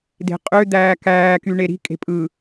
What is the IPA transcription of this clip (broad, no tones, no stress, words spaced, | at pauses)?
de̤qʼø d̪æːkæː kyɳeɾi̤ kʼe̤pʼɯ